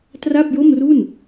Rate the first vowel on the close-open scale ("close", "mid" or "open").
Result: open